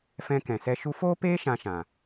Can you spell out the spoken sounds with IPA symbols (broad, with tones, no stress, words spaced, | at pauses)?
fɛ̃˧kɛ̃˨sɛ˧ ʃu˧foː˦peː˦ ʃã˧ʃã˨